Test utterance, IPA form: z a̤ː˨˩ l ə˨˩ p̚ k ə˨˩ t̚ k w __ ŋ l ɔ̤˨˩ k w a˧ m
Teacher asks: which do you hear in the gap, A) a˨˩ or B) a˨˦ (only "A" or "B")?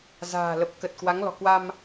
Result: B